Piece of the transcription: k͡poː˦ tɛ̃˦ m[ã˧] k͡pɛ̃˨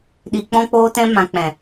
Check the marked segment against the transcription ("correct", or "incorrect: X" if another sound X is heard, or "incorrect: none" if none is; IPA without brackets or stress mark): correct